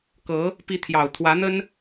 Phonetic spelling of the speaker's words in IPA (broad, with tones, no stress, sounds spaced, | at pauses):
k ɤ˧˥ | p i˧˥ t̪ʰ j ɑ˨˩ ʊ̯ t̪ʰ w ä˧˥ n̪ ə˥ n